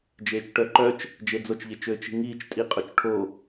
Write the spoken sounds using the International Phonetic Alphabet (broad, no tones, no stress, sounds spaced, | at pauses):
d͡ʒ eː t͡ʃ ʈ œ ǃ œ t͡ʃ | d͡ʒ e d͡z o t͡ʃ ʎ e t͡ʃ øː t͡ʃ i̤ ŋ iː t͡ʃ tʼ i qʼ o t͡ʃ ʈʰ o